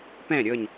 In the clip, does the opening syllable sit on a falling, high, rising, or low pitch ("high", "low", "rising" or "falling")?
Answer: falling